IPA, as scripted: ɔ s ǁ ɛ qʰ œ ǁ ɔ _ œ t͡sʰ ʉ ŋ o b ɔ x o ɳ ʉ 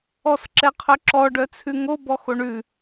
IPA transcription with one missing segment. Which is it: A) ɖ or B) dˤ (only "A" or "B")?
A